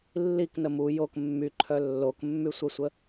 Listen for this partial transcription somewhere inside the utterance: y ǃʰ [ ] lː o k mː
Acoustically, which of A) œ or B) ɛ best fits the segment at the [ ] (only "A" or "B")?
A